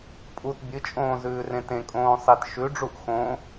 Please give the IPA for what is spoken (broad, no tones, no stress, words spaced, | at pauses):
pʼut bʲɨt͡ʃʼõːzʉːrẽ tẽkʼõː sˤit ʃʉɖ͡ʐuʔ xõ